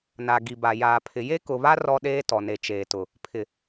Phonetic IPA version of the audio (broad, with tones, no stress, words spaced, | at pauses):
na˨ ɡi˨ ba˨ jaː˨pʰɪ˨ je˦kʊ˨βa˦ rɔ˦ɗeː˦ tɔ˨ne˨t͡ʃeː˨tʊ˨ | pʰɪ˨